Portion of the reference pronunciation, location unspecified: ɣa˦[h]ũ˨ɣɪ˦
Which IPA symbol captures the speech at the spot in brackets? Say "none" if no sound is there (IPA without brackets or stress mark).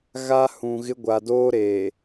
h